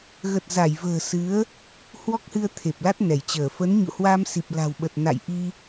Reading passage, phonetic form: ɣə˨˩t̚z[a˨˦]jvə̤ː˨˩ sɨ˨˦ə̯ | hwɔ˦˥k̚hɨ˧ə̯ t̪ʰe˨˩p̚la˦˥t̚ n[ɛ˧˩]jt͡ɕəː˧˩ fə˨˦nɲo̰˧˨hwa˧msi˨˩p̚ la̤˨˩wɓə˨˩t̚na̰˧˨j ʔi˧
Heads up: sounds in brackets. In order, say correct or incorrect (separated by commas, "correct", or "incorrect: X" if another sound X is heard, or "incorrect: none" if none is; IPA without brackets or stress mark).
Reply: incorrect: a˧˩, correct